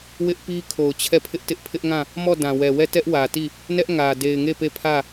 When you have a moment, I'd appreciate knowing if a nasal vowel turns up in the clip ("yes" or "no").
yes